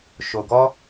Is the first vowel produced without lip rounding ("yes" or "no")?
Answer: no